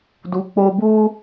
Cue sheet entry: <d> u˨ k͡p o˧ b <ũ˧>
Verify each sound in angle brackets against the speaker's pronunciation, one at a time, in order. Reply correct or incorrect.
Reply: correct, incorrect: u˧

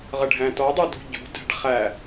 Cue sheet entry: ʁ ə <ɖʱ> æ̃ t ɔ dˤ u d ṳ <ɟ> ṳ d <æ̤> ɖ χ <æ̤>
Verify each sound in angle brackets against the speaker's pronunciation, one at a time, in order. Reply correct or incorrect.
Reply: correct, correct, correct, incorrect: æ

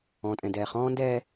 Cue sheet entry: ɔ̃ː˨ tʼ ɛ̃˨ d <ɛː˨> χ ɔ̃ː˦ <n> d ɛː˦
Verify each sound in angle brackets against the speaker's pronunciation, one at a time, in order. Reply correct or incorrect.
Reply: correct, correct

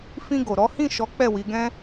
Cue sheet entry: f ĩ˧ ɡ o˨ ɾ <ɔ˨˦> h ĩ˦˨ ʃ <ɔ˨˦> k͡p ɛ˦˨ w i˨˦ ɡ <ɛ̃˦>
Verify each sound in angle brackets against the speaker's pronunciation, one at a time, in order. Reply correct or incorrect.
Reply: correct, correct, correct

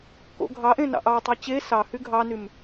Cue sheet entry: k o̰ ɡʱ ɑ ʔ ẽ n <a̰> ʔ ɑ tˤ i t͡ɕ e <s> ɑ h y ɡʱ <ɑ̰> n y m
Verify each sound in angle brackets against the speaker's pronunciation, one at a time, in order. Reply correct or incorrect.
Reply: incorrect: ɑ̰, correct, incorrect: ɑ

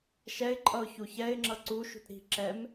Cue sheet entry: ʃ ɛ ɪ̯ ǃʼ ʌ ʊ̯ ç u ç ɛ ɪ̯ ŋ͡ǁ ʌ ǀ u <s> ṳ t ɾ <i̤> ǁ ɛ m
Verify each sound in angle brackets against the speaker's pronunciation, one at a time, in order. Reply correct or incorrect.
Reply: incorrect: ʃ, correct

